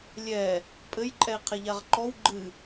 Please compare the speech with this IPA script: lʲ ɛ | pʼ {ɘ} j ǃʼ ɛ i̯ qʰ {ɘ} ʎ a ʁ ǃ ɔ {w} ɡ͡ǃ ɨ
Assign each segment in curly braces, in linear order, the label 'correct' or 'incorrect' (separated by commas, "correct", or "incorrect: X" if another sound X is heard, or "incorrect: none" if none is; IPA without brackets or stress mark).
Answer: correct, incorrect: ɛ, correct